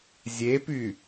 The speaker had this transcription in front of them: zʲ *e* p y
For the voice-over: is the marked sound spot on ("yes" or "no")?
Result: yes